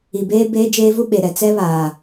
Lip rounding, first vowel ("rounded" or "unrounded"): unrounded